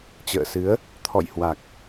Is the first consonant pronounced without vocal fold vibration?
yes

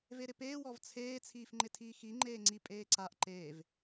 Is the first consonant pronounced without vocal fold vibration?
no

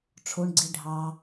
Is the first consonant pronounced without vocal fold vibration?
yes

